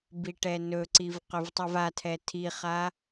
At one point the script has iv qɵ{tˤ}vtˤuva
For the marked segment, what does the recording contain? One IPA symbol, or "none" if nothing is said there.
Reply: none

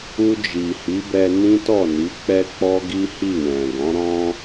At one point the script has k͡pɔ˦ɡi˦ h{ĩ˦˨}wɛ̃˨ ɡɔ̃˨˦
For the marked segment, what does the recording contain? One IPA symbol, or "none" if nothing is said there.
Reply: i˦˨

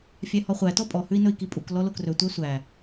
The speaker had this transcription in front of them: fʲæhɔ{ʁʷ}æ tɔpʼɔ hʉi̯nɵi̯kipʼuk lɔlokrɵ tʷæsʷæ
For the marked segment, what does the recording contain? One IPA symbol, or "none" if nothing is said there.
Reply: χʷ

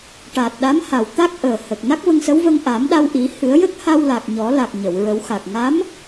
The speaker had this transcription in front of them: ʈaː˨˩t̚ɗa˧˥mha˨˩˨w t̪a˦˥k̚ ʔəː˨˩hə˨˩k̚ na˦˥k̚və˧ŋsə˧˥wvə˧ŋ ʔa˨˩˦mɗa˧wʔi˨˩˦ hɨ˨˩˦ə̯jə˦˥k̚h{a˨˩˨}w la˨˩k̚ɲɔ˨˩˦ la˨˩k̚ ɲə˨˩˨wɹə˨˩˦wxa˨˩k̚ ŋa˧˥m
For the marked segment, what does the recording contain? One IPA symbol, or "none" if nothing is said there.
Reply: a˧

